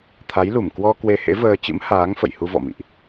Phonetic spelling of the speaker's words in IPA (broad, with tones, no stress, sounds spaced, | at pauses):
t̪ʰ a˨˦ j l u˧˩ m k w ɔ˧ k w e˧ h ḛ˧˥ v əː˧ t͡ɕ ɨ̰˧˥ m h aː˨˦ ŋ f ə̰˧˨ j h u˧ v ɔ̰˧˨ m ḭ˧˨ ʔ